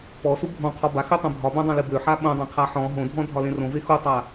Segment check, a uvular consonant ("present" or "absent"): present